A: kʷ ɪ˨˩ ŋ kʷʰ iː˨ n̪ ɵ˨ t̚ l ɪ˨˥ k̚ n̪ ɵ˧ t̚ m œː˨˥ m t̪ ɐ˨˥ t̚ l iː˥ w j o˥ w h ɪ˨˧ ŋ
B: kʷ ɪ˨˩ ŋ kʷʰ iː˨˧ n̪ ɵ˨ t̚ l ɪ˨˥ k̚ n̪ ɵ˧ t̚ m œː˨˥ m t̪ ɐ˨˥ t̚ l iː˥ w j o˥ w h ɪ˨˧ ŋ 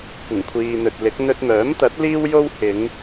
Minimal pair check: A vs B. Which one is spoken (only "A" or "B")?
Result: A